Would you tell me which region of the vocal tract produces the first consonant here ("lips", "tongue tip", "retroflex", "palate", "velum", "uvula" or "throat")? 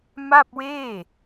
lips